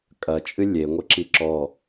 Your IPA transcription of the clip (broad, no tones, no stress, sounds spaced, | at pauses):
kʼ ɐ t͡ʃʼ ɨ lʲ e ŋʷ ɘ ǁ i ǁ ɔ